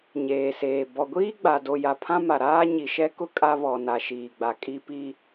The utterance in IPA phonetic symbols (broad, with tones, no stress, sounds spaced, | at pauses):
ɲ eː˨ s eː˨ b ɔ˨ ɡʷ iː˦ ɡ͡b a˨ d o˨ j a˨ pʰ ã˦ m a˨ ɾ aː˦ ɲ i˨ ʃ ɛ˦ k ʊ˦ kʼ a˦ β ɔ˨ n a˨ ʃ iː˨ ɡ͡b a˨ kʼ i˦ p i˦